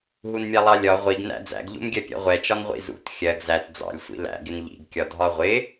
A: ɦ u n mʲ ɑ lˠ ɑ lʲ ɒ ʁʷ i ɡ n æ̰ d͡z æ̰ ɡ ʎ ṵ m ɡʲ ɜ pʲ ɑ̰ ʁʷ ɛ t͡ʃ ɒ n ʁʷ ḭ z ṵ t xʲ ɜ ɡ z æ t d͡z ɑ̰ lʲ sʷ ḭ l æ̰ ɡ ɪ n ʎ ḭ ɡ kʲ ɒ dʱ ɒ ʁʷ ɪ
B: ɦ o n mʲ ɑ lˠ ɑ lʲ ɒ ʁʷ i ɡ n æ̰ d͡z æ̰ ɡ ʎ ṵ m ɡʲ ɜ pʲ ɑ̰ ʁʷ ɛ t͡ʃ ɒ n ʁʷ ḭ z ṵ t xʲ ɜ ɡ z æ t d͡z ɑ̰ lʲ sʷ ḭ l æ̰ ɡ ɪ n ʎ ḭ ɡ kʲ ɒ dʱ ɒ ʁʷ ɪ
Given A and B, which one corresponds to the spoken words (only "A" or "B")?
A